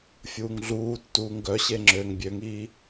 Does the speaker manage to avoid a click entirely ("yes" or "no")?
no